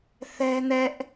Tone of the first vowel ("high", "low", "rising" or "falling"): high